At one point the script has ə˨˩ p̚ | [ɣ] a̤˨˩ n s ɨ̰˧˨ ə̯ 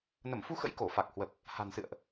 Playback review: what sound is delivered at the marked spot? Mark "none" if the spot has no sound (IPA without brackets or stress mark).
h